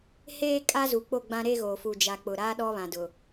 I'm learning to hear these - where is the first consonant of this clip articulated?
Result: throat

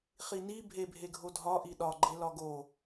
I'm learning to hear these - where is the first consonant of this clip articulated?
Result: uvula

